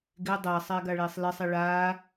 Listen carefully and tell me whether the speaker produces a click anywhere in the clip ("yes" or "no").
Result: no